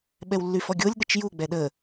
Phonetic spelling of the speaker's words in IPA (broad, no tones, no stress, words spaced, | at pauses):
ɓɛwlːyfɔɡʲolʲ ɗət͡ʃju ɡ͡bɛɗə